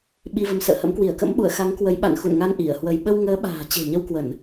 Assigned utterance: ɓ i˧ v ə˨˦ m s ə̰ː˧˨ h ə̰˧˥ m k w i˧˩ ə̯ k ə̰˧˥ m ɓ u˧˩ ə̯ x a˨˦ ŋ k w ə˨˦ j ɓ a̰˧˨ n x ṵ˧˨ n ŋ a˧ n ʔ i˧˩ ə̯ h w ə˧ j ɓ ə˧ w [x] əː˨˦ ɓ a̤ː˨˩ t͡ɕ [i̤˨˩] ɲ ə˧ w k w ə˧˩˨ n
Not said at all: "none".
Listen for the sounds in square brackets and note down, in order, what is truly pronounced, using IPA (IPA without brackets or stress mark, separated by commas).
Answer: ŋ, e̤˨˩